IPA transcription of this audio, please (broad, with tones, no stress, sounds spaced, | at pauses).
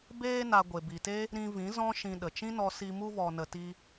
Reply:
b eː˧ n a˨ ɡʷ e˨ b i˨ t e˦ | ɾ ĩ˧ v ĩ˨˦ z ɔ̃˦ ʃ ĩ˧ ɗ ə˨ t͡ʃ ĩ˦ n ɔ˧ s i˧ m u˧ v ɔ˨ n ə˨ t i˧